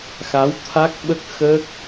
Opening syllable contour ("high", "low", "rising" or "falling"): rising